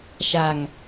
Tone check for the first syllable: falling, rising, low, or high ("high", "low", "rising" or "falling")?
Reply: low